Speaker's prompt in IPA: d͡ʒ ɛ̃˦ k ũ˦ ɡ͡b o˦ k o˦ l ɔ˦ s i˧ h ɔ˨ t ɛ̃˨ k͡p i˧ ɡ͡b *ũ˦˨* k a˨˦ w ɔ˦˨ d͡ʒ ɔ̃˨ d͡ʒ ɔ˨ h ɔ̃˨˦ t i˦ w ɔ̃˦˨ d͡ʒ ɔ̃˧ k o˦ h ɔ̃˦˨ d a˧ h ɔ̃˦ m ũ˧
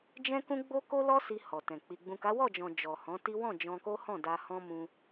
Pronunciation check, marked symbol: incorrect: ũ˨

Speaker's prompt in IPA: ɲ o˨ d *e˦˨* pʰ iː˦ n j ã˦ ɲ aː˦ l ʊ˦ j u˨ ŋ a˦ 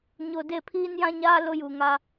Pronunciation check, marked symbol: correct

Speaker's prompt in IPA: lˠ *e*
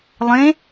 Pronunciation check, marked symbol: incorrect: ẽ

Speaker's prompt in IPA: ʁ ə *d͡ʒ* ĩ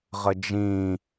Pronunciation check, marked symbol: correct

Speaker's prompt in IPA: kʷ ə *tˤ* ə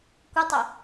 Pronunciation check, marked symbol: correct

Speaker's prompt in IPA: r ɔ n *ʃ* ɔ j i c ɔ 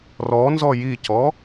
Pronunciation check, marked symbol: incorrect: z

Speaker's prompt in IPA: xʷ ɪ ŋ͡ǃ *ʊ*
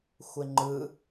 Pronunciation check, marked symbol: incorrect: ɯ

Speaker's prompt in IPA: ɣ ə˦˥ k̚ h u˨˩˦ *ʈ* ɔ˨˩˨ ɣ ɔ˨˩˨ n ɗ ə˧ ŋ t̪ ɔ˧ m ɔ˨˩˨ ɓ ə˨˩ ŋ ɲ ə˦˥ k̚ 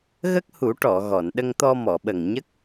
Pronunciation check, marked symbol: correct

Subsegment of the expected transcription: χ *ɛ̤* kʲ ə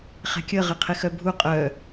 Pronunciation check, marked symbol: correct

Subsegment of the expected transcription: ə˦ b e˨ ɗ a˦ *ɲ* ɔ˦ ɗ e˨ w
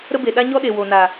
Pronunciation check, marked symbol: correct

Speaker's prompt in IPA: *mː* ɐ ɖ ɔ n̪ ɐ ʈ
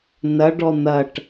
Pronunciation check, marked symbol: incorrect: n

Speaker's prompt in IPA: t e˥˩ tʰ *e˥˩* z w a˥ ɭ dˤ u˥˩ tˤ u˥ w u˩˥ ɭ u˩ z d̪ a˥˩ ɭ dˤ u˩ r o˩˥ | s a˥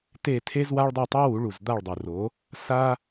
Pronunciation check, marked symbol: incorrect: e˥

